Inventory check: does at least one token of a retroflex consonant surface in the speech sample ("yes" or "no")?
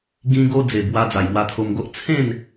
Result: no